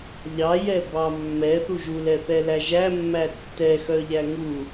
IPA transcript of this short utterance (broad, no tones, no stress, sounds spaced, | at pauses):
ʎ ɑ j ɛ b ɑ mː ɛ θ u ʒ u l ɛ θ ɛ l æ ʒ æ mː æ tː ɛ x œ ʎ æ ŋ u